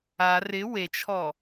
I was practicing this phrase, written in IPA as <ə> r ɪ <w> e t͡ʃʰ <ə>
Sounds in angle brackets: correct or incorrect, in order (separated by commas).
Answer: incorrect, correct, incorrect